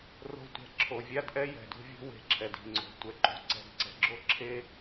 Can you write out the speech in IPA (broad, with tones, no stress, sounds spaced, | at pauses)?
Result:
r o̤˦ tʷ ɛ̤˨ ǁʰ o˨ vʲ a˥ d ʔ ɛ˥ j ɛ̤˩ d ṳ˥ vʲ o̤˥ w e̤˨ ǁʰ ɛ˩ d i̤˩ ŋ͡ǀ o̤˩ tʷ ɛ˩ ǃ ṳ˨ ǀ ɛ̤˨ d ǀ ɛ̤˨ ɡ͡ǁ o˥ ǁʰ e˥